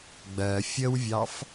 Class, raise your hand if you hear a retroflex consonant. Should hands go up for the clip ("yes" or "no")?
no